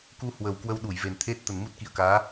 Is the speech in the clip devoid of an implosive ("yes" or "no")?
no